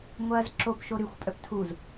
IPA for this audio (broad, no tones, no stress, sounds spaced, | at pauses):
ŋʷ ɐː z ǁ o p ʃ o ɾ y xʷ pʼ œ p tʰ u z